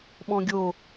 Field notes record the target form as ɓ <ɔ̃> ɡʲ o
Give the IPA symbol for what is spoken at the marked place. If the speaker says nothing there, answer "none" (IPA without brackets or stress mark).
ɔ̃